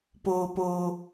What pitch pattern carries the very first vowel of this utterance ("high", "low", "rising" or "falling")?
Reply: low